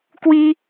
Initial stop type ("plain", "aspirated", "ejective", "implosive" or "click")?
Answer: plain